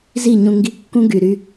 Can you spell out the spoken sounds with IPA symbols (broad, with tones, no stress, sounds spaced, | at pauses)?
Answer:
z i˦˨ ɲ ũ˧ ŋ ɡ i˧ kː ũ˦ ɡ y˨ ɾ y˧